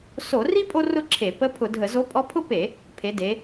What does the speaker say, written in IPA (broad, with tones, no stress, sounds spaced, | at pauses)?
s o˧˩˧ r i˥ pʼ o˥ r ʊ˥ ǁʰ e˧˩˧ p ə˧˥ pʰ ʊ˧˩˧ dʱ ə˧˩˧ z o˧˥ pʼ ɔ˧˥ pʰ ʊ˥ p e˧˩˧ | pʰ e˩˧ d e˩˧